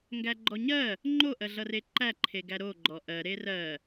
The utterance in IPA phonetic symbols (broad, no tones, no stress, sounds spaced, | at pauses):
ŋ ɡ æ ɡ͡ǃ ɔ ɲ ɜ | ŋ͡ǃ o ʔ ɜ ɮ ʌ r e ǃ æ ǃʰ e ɡ æ ɾ o ɡ͡ǃ ɔ ʔ ɜ ɾ e r ɜ